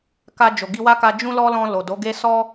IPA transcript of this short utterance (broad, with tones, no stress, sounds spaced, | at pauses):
k a˧ d͡ʒ o˨ ɡ i˧ w a˦ k a˧ d͡ʒ ũ˦ l ɔ˦ l ɔ̃˧ l o˨ d o˨˦ ɡ e˦ s ɔ˦